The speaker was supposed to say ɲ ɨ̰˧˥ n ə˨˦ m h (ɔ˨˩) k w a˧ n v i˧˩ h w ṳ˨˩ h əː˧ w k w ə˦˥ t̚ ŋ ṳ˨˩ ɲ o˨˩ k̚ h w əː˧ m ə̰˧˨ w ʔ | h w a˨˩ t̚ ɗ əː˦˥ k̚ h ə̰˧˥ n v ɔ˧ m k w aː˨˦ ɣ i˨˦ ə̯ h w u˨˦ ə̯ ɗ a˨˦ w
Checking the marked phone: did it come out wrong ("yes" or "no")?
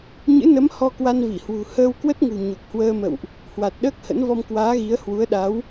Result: yes